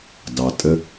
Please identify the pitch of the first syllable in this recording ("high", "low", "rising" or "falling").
low